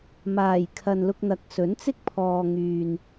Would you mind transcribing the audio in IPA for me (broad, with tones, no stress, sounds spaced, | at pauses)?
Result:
m aː˨˩ j kʰ ɐ˨ n l ʊ˧ k̚ n̪ ɐ˨˥ k̚ s ɵ˨˥ n t͡s ɪ˥ k̚ pʰ ɔː˨ ŋ yː˨ n